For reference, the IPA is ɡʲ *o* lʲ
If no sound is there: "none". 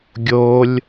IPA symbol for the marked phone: o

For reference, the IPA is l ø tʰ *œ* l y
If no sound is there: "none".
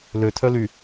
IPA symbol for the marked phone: œ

